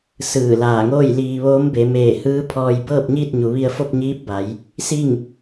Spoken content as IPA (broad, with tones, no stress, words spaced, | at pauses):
sɯː˧˩laː˧˩ŋoː˥˨jliː˧ ʋoː˧˥mbe˩˧ meː˧˩hɯː˧˥pʰɔː˧j bɤː˥˨p̚ɲiː˥˨t̚ɲu˩˧ʋi˧ə̯ fo˥˨p̚ɲiː˧˥p̚ba˩˧j | si˥˨ŋ